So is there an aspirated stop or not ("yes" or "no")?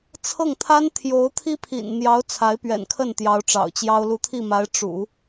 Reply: yes